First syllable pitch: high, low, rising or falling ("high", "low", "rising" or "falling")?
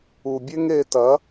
low